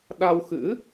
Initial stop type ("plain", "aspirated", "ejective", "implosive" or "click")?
implosive